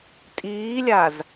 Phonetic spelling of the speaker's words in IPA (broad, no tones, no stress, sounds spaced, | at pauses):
tʼ iː lʲ a z